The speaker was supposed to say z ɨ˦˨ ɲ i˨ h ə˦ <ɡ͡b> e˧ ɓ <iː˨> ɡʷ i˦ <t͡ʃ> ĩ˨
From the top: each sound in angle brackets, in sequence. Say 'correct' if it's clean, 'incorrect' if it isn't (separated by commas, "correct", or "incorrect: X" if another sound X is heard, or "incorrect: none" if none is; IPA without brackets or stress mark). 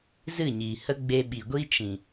correct, incorrect: i˨, correct